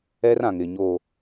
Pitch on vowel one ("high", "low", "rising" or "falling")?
high